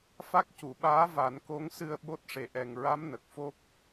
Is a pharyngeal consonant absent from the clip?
yes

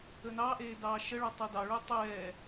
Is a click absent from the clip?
yes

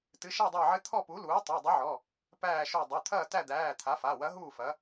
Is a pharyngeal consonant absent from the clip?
no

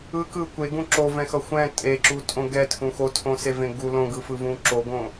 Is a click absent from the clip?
no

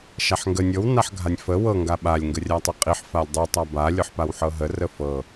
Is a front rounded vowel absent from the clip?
yes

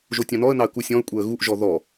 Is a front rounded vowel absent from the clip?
yes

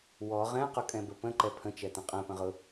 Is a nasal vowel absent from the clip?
no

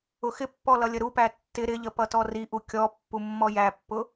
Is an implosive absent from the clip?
yes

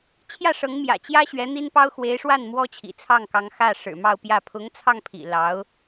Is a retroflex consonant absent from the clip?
no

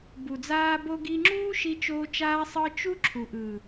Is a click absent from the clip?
no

